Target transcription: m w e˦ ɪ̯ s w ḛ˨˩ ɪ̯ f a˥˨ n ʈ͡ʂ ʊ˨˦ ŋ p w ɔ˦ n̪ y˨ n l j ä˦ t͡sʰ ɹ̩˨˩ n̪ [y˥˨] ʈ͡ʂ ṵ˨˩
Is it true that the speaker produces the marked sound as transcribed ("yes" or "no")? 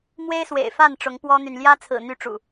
yes